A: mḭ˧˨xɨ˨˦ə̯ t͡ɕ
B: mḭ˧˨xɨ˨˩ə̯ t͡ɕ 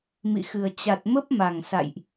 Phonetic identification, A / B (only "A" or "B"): B